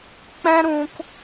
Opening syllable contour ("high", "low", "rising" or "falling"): high